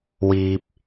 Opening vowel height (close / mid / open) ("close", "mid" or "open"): close